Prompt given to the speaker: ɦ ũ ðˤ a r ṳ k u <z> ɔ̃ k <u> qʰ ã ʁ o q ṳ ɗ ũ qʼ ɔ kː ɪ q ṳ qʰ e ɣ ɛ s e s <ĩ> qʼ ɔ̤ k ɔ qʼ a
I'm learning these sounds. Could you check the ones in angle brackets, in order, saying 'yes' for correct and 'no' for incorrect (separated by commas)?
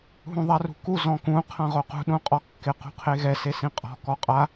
yes, no, yes